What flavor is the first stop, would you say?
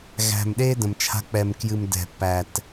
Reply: implosive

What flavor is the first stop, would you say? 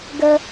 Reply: plain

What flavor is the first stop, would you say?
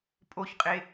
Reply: ejective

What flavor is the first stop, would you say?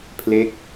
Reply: aspirated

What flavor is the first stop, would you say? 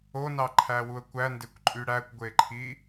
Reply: click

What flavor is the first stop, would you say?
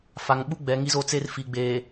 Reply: implosive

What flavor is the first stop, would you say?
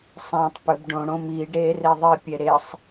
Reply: plain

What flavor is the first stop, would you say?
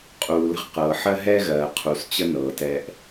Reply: ejective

